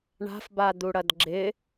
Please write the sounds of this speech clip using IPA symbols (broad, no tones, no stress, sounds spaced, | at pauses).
ɳ a̤ f b a d̪ u ɽ ɐ d ɡ͡ǁ ɪ